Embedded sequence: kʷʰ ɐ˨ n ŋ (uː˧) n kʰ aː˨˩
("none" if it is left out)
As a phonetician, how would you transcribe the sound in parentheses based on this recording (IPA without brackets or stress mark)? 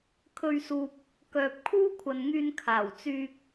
yː˧